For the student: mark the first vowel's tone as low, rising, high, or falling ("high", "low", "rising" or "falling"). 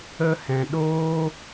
high